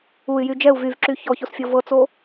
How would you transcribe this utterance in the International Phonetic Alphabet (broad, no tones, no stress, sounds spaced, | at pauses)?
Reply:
u y̯ j y d͡ʒ ɛ u̯ v y v ǁ y ç ɔ ç o s fʲ ɤ v ɤ t͡s o